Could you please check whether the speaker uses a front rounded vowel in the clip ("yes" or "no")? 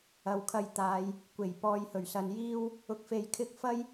no